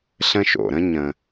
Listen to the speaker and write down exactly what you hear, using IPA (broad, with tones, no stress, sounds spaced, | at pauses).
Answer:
ɬ ə̃˦ ʃ o̰˩ ɾ ə̃˥ ɲ ə̃˨